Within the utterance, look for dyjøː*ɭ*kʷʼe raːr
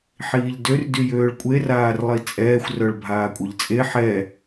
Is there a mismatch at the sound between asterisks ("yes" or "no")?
no